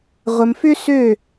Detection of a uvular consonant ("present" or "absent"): present